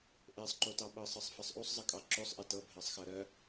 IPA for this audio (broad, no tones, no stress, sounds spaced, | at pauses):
ʔ e sˤ ǃ o t ɑ ɓ ɤ sˤ ɤ sˤ f ɜ sˤ ʔ u sˤ zˤ ə kʼ ɑ ǁ o sˤ ʔ e t ɤ bʱ ɜ sˤ x ɜ ɾ ɜ